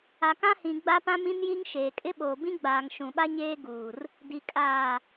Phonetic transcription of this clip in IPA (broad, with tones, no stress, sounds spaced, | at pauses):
a˨ k ã˦ h ĩ˨ ɡ͡b a˦ p ã˦ m ĩ˦ n j i˦ ŋ ʃ eː˨ kʼ ɪ˦ ɓ oː˨ b ĩ˦ ɡ͡b aː˨ ŋ ʃ ũ˨ ɓ a˦ ɲ eː˦ ɡ uː˨ r | d i˨ kʼ aː˨